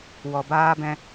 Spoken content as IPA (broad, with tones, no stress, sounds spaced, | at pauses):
w ɔ˨ b aː˦ b ɛ̃˧